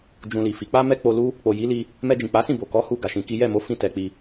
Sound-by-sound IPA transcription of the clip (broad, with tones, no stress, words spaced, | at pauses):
d͡ʒũ˧li˨fi˨˦ k͡pa˦mɛ˦ k͡po˧lu˦ | k͡po˨ji˨˦li˧ | mɛ˧d͡ʒĩ˨k͡pa˨˦sĩ˦˨ bo˨kɔ˨˦ hu˧ ɡa˨ʃĩ˧ki˦ jɛ˦˨mo˨˦ fĩ˦˨tɛ˧k͡pi˧